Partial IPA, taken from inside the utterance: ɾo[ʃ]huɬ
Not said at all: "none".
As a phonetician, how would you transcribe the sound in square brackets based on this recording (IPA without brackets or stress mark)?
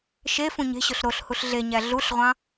ɬ